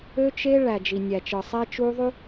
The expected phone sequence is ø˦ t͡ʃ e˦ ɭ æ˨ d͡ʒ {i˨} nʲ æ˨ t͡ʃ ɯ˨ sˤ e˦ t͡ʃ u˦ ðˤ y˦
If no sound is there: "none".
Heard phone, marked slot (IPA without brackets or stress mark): i˨